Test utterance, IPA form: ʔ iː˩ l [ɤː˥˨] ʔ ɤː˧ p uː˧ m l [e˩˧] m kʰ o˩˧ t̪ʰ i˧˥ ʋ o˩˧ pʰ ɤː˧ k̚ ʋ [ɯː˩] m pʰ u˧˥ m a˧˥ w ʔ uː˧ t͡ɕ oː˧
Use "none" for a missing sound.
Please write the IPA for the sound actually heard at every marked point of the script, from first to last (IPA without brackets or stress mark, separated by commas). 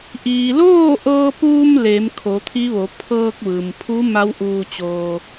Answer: oː˥˨, e˩˧, ɯː˩